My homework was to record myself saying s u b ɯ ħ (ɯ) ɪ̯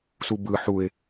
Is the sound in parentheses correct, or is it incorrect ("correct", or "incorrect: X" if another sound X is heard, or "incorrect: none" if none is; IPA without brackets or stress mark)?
incorrect: u